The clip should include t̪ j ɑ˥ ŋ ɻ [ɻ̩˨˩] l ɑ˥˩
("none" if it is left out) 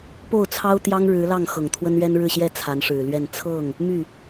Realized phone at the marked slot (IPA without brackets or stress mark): ɻ̩˧˥